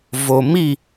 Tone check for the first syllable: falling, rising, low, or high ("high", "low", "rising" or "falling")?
low